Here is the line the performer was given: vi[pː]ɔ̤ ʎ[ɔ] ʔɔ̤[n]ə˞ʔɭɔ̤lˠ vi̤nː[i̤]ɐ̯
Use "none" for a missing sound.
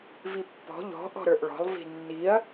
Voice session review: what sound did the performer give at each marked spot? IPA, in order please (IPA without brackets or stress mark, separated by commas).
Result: pː, ɔ̤, ɾ, i